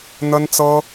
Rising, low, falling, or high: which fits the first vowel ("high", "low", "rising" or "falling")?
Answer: high